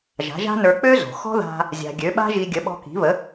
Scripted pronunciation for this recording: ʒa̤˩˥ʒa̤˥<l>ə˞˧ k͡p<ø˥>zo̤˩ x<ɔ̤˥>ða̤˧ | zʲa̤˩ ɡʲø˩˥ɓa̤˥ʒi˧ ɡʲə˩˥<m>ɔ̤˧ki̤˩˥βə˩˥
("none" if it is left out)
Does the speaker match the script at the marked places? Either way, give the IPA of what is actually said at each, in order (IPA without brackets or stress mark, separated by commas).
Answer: n, ø˥, ɔ̤˥, ɓ